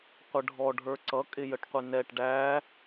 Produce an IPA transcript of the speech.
qʷ ə ɖʱ ɔ ɖʱ ə˞ ǀ ʌ kʼ ɪ j ə ʈ qʷ ɪ n ɛ ʈ ɖ æ

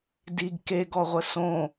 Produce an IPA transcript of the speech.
d i ɡ k e ɡ ɔ ʁʷ ə s õ

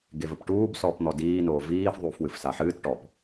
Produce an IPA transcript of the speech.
ɡ e v ɘ p ʈ uː b s ɔː p n̪ ɔ d iː n oː v iː f ðˤ uː f w ɨ f s a ħ ɨː t ʈ ɔ p

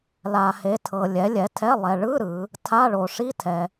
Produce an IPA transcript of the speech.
l a˨ h e˨˦ tʰ ɤ˨ lʲ ɛ˨˦ lʲ ɛ˨˦ tʰ ɛ˧˥˧ lˠ ɛ˨ ɭ ɯ˧˥˧ ɾ ɯ˨˦ | tʰ a˧˥˧ ɭ o˨ ʂ i˧˥˧ tʰ ɛ˨

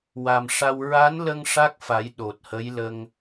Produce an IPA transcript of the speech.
w a˨˩ m ʂ a˧ w ɹ a˧˥ n l ə˧ ŋ ʂ a˦˥ k̚ f a˨˩˦ j ɗ o˨˩ t̚ h ə˧˥ j l ə˧ ŋ

